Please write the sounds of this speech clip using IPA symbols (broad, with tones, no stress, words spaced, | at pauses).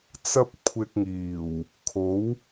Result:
t͡sɐ˥p̚kʷʰɪ˧k̚ŋiː˨˩w | kʰo˨˥w